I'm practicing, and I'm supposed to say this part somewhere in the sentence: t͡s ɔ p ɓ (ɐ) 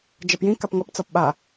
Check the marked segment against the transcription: incorrect: a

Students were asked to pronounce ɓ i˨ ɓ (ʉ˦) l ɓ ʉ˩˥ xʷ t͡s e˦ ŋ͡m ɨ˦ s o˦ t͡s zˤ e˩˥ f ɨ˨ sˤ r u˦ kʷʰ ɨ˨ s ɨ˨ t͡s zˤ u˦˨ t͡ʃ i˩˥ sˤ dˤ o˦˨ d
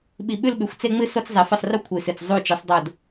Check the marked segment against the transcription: incorrect: ʉ˦˨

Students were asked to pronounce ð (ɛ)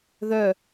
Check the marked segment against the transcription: incorrect: œ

